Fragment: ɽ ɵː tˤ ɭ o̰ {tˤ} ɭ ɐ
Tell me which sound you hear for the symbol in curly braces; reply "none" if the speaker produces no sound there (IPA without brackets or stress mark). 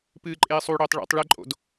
tˤ